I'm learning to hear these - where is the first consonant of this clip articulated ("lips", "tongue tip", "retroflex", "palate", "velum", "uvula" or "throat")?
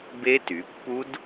lips